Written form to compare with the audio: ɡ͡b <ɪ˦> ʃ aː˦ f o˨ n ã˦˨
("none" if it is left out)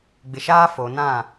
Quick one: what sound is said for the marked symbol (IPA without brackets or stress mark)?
ɪ˨